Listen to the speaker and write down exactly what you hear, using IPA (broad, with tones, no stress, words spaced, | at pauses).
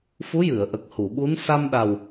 fu˧˥jɨ˨˩˨ə̯ʔə˨˩k̚ hu˨˩˨ɓu˧˥n sa˧mɗa˨˩w